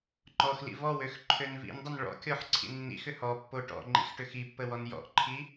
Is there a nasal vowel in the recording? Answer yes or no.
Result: no